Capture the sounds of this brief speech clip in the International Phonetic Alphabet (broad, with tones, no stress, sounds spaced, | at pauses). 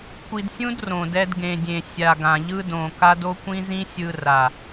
kʷ i˨ d sʲ ũ˦ d r õ˨ d ɛ˦ d ɡ ẽ˨ dʲ ẽ˨ sʲ a˨ ɡ ã˨ ʎ ɯ˦ d õ˨ k a˦ d o˦ kʷ ĩ˦ z ĩ˦ sʲ ɯ˨ r a˨